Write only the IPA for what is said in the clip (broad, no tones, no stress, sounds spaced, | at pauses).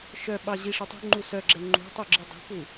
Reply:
ʃ œ ɓ ɑ ʑ i ʂ ɛ tˤ ṳ ŋ͡ǃ u s œ ɡ͡ǁ ɛ ŋ͡ǃ ṳ tˤ u ɡ͡ǁ i dˤ o̤ k u